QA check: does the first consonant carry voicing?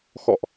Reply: no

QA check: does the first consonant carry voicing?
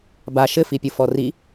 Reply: yes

